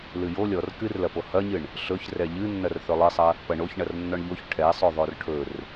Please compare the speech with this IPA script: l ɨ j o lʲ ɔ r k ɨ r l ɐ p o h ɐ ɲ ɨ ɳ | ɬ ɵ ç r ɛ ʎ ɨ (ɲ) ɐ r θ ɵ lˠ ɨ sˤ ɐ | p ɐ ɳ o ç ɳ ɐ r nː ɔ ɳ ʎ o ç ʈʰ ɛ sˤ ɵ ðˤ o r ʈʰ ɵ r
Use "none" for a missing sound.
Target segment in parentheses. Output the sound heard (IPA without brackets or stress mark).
nː